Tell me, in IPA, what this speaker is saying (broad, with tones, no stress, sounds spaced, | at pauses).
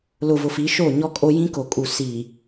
l ʊ˨ v ʊ˨ f i˨˦ ʃ o˦˨ ɲ ɔ˦ kʼ o˦ j ĩ˦ k o˨ kʼ u˨ s i˨